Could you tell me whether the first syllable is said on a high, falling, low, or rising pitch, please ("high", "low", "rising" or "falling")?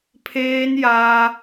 high